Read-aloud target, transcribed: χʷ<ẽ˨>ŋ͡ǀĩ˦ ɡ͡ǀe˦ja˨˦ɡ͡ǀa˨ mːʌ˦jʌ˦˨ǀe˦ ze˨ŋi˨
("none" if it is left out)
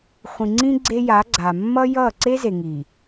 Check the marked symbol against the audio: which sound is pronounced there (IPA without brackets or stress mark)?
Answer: ĩ˨